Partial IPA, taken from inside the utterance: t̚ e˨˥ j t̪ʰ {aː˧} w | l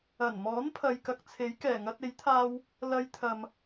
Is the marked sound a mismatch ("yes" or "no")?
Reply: no